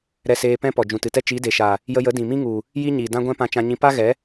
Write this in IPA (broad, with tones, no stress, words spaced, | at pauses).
ɾɛ˧seː˧pɛ̃˦ pɔ˨ d͡ʒũ˨tɨ˨tɛ˦ t͡ʃi˨˦de˨ʃa˨ | jə˧jə˨˦ dĩ˨mĩ˦ŋu˨ | ji˦ɲi˨dã˦ɡʷɛ̃˦ pã˧t͡ʃã˧ɲĩ˧ pa˦ɣɛ˨˦